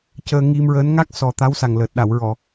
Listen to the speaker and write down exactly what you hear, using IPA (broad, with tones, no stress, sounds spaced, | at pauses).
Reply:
c əː˧ ŋ i˧ m ɹ əː˧˥ n ŋ a˦˥ k̚ s ɔ˨˩ t̪ a˧˥ w s a˨˩ ŋ l əː˨˩ t̚ ɗ a˨˩˨ w ɹ ɔ˨˩˨